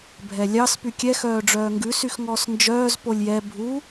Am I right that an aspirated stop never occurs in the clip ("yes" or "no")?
yes